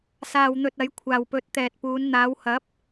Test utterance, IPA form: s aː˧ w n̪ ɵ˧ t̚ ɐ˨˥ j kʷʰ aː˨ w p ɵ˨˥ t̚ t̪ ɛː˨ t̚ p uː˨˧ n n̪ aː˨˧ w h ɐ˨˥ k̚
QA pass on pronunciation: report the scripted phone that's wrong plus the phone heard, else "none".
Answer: k̚ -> p̚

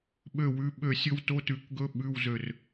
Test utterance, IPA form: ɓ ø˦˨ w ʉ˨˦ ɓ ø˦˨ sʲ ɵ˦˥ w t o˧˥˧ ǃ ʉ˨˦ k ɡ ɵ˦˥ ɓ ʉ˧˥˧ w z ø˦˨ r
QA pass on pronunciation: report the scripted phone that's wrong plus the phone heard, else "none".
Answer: ǃ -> t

